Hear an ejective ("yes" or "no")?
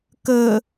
no